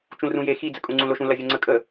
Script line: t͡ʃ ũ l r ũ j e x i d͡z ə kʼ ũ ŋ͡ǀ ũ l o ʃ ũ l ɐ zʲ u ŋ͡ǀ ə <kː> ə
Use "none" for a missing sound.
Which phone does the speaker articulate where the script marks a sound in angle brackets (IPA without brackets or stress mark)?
kʼ